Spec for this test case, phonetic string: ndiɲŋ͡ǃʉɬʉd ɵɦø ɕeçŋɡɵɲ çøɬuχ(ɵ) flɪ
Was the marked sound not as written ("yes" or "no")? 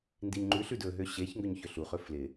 no